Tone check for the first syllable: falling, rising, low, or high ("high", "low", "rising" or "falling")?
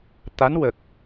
rising